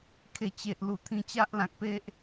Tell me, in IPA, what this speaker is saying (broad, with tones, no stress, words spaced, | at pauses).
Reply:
kʰe˨˩t͡ɕe˨ʔlu˨˩ t̪ʰĩ˧t͡ɕa˦ʔlã˨k̚pe˦ʔ